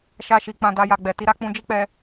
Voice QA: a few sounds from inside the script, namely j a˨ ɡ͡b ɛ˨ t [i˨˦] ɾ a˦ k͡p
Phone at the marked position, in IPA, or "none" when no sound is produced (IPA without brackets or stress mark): i˨˦